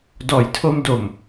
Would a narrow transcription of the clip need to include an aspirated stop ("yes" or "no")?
yes